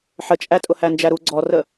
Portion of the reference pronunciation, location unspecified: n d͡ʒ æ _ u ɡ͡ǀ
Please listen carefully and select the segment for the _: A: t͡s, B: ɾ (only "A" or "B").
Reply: B